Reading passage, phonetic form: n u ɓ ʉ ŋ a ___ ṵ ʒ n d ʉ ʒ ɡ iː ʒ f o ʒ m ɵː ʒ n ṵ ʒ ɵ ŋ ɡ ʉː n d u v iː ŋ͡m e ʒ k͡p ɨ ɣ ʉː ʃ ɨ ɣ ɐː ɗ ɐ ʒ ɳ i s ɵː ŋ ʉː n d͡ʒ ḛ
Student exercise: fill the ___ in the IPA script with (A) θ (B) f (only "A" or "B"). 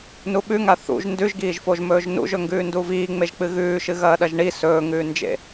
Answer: A